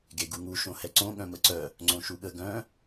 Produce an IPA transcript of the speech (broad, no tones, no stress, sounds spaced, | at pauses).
ɡ e ɡ u ŋ u ʃ õ h ɛ ǀ õ ɠ œ̃ m ə ǀ œ | ŋ͡ǀ õ ʃ u ɠ ə ɡ œ̃